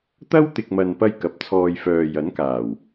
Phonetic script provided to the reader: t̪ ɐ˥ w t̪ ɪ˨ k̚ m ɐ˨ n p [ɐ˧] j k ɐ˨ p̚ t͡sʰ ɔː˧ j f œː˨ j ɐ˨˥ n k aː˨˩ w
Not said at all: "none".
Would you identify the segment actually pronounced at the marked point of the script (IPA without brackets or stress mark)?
ɐ˧